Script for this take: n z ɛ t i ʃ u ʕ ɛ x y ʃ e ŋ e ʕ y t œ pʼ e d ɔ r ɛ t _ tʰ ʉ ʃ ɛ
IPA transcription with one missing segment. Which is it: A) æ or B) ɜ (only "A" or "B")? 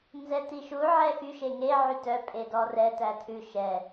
A